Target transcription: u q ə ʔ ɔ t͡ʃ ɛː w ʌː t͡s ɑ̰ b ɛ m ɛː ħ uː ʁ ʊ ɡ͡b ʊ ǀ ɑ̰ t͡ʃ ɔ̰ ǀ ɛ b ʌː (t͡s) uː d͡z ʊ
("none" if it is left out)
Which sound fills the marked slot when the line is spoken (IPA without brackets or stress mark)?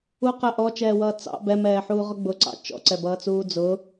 t͡s